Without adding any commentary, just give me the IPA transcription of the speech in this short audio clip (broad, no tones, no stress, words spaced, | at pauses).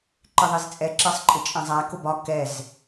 ǃɪðˤizt͡sʼɛ ǁɜsˤǃʼɪt͡ʃʼɛ̃zˤæ kʊbɒ kɛz